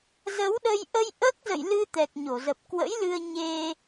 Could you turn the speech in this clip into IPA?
zə˨˦wɗə˧j ʔə˧j ʔəː˦˥k̚zə̰˧˨jlɨ˧ t̪ɛ˨˩k̚ɲo˧˩zə˨˩p̚ kwə̰˧˥jlɨ˧ə̯ ɲe˧

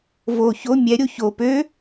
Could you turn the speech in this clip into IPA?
vo ço mʲɛɾʲo ço pø

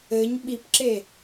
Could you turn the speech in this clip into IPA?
ɘɲ ɓipǁe

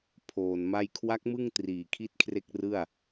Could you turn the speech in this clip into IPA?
pʰoː˨˩nma˥˩j kʰwa˦˥k̚mɯ˥˩ŋ triː˨˩kʰi˥˩t̚kʰre˥˩k̚rɯ˥˩a̯

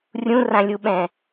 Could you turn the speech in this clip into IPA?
rʲũrãlʲuɓɛ̃

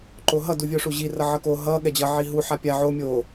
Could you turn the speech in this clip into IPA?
ǃoɦʌ duvʲoʂuʑi rʌʕʌko ɦʌ ɠɛd͡ʑʌ ʕiɦu ħapʲa ʕo mʲo

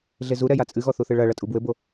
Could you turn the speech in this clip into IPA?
ɮezuɾɛ jat͡sʼɨɣɔ θuθɨɭɐɭɐ tʼubwɘbo

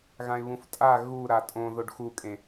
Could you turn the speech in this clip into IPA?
ɣãɪ̯βũftʼa ɣu ɾatʼõ ðoɖxukʼẽ

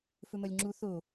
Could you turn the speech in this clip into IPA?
fɵmɐlʲŋ͡ǁu θo

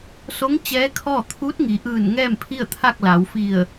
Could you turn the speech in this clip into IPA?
so˧˥ŋ t͡ɕɛː˧˥kʰɔː˥˨ t̪ʰuː˧˥t̚ŋi˩˧ʔɯː˧˩n ŋɛː˥˨mpʰi˥˨ə̯t̪ʰa˥˨k̚la˩˧w fi˧˩ə̯

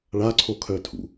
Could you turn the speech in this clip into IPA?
ɭaǀʰokʰœtʰṵ

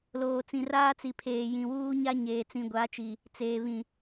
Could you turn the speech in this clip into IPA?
loː˨t͡sĩ˨ raː˦t͡si˨ pʰeː˨jĩ˨wuː˦ɲa˦ ɲeː˨t͡sĩ˨ɡʷa˨˦t͡ʃi˨ | t͡seː˨βĩ˨

